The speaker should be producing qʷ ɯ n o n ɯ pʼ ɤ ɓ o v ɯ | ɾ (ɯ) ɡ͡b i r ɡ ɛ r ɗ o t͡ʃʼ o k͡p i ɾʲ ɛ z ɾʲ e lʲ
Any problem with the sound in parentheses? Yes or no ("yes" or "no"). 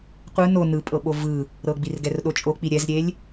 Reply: yes